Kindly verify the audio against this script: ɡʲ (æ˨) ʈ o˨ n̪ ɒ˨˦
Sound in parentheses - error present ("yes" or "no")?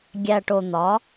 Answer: no